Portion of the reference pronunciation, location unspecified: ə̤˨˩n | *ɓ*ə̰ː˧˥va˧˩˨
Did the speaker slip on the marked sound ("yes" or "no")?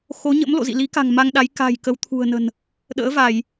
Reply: yes